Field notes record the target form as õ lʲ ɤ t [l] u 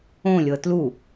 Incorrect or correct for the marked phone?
correct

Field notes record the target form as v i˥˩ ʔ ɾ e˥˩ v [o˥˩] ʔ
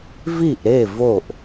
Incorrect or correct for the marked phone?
correct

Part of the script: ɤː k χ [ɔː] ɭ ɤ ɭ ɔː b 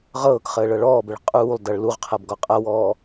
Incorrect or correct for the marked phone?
incorrect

